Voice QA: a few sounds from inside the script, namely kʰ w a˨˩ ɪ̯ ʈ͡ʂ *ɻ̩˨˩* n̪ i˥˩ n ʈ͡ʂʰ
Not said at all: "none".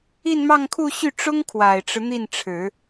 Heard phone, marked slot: ɻ̩˦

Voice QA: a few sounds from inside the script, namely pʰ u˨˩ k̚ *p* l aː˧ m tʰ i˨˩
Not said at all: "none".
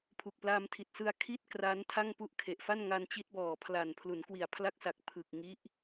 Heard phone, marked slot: p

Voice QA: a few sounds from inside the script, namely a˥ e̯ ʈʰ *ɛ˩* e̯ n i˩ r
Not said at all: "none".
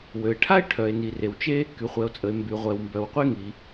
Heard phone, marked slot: œ˩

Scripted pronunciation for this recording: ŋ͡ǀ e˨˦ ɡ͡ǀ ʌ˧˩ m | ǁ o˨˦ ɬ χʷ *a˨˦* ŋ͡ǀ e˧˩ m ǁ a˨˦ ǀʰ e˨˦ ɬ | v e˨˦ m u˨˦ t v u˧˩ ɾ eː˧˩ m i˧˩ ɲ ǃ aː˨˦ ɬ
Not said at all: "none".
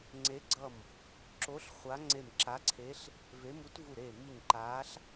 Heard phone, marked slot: a˨˦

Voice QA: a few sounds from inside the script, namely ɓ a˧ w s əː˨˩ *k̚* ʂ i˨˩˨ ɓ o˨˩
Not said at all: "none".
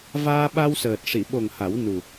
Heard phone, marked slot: t̚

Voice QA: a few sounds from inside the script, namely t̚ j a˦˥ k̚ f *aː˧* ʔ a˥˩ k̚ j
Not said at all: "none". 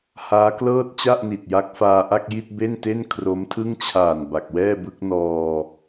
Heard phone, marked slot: aː˧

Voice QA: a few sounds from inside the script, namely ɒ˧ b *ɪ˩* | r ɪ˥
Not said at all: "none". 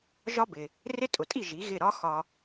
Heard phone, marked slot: ɪ˩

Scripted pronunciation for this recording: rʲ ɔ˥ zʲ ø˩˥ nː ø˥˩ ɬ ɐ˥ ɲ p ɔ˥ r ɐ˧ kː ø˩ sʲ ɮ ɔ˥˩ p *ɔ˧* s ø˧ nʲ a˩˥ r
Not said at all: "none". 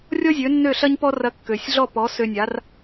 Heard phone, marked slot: ɔ˩˥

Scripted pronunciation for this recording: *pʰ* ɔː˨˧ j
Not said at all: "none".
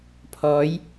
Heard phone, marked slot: pʰ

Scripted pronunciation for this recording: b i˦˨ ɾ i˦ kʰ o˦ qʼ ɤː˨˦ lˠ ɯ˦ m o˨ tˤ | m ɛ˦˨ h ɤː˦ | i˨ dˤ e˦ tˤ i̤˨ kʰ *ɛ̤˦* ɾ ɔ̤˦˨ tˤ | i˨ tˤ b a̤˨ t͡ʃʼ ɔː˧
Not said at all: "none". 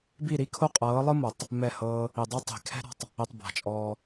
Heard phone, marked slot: ɛ̤˦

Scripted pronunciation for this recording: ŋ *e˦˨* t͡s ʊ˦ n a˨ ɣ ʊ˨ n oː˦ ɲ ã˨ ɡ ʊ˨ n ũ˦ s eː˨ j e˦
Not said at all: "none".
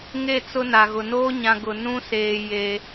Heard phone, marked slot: e˦˨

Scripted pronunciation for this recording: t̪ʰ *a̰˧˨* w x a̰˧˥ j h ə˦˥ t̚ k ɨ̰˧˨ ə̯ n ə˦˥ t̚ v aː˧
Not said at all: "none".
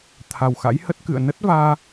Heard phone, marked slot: a˨˩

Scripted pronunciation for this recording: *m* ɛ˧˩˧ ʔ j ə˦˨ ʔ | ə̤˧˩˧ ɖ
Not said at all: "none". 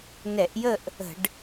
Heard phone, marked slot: n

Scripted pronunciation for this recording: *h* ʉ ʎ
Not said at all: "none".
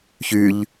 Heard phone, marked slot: ç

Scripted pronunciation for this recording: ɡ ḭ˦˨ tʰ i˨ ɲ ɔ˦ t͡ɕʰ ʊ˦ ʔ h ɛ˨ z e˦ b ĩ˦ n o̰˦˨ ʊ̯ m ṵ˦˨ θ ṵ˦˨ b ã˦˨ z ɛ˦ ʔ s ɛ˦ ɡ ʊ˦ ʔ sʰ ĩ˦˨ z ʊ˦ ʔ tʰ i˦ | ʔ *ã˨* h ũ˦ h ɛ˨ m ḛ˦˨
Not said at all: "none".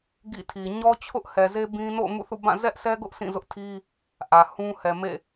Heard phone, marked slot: ä˨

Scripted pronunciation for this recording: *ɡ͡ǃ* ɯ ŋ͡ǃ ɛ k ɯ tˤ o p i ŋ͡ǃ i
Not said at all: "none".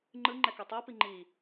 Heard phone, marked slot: ŋ͡ǃ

